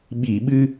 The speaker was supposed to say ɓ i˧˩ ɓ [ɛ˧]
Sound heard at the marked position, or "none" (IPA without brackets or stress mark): ɨ˧